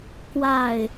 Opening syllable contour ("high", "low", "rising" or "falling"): falling